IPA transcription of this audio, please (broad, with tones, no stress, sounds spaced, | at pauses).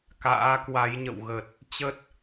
k a̰ː˧˥ k w a˨˦ j ɲ ə̰˧˨ w ɣ ə˨˩ t̚ | t͡ɕ ə˦˥ t̚